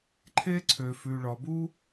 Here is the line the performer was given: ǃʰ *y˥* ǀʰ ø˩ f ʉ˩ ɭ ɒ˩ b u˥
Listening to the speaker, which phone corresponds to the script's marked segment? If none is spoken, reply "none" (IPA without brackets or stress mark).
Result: e˥